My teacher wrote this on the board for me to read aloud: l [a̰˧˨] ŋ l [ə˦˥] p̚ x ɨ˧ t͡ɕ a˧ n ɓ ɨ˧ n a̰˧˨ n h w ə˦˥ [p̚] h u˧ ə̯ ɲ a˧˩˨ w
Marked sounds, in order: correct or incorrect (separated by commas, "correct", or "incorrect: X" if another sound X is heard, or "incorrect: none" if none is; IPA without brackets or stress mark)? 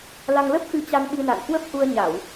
incorrect: a˧, correct, correct